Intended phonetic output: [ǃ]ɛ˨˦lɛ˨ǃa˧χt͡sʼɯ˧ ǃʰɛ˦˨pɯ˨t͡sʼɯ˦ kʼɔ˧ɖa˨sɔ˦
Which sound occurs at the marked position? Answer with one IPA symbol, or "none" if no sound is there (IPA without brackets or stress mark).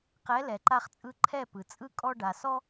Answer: q